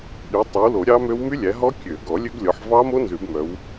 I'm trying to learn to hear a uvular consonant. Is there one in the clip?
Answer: no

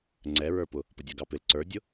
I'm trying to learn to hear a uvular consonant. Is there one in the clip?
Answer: no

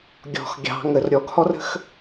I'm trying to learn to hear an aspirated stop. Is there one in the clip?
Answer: no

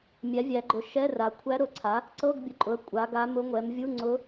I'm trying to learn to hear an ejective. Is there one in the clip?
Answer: yes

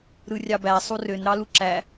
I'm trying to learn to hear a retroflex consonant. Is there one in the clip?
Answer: no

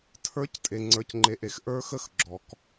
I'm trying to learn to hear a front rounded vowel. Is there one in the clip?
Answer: no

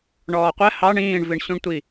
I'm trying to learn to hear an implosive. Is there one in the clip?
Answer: no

